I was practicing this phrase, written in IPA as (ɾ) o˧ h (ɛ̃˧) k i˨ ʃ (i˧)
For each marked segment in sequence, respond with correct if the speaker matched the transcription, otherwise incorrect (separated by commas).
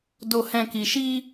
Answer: incorrect, correct, correct